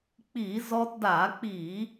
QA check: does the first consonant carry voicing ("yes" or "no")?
no